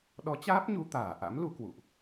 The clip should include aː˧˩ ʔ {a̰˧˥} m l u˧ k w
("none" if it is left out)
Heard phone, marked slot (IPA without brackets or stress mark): a̰˧˥